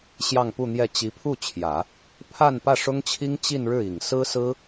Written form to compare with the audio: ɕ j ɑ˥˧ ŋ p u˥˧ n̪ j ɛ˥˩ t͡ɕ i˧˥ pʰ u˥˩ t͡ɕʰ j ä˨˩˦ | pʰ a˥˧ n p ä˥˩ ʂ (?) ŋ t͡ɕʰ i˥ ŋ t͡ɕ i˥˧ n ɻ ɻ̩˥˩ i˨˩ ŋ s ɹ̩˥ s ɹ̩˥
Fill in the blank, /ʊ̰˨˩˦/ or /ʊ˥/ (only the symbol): ʊ˥